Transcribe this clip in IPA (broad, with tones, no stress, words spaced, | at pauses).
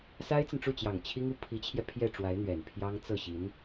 sa˥ɪ̯t͡sə˨nʈ͡ʂu˥˩t͡ɕjɑ˨˩ŋ t͡ɕʰi˥ŋu˥˩ pʰi˧˥t͡ɕʰjɛ˧ pʰjɛ˥˩ʈ͡ʂwa˧˥ɪ̯ n̪ɥɛ˨˩npʰjɑ˥ŋ t͡sɤ˥˩ɕi˧˥n